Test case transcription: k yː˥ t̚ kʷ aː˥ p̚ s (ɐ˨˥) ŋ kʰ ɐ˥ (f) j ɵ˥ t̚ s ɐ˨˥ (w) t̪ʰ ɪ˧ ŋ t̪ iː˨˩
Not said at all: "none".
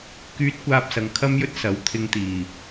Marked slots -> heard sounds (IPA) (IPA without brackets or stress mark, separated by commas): ɐ˨, m, w